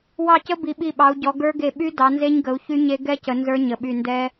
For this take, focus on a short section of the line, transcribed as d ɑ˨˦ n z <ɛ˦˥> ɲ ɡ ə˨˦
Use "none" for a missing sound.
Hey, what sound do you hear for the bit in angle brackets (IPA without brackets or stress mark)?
e˦˥